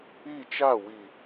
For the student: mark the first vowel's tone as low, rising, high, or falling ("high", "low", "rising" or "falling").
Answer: falling